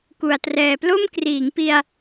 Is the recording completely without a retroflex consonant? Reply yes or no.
yes